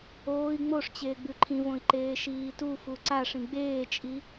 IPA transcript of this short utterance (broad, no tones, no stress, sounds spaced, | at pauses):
oː i̯ ŋ͡m o ʂ t͡ɕ eː ɡ͡b ʉ ǃʰ ĩ v õ i̯ ǃ eː ʃ iː t u f u ǀ a ʂ ĩ ɡ͡b eː t͡ʃʼ i